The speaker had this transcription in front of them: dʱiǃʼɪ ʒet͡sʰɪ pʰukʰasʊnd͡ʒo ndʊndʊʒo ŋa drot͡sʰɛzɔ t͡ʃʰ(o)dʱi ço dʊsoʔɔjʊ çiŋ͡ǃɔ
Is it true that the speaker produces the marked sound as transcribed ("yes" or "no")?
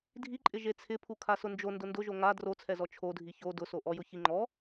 yes